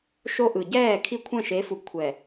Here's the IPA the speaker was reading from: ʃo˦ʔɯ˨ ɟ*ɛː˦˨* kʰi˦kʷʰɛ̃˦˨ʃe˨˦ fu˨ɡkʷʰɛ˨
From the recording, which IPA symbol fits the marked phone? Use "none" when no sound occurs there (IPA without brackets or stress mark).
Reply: ɛː˦˨